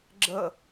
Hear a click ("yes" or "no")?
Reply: yes